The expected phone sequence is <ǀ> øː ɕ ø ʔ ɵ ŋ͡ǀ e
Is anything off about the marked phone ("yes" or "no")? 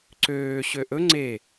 no